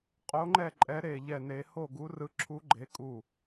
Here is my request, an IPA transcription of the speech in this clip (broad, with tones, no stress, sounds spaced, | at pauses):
qʼ o˦˥ ŋ͡ǃ ɛ˥˧ ǃʼ ɛ˦˥ ɾ e˥˧ ʎ ɛ˥˧ n e˦˥ h o˥˧ ɡ u˦˥ r ɯ˦˥ ǁʰ u˦˥ ɡ͡ǃ e˦˥ kʼ u˥˧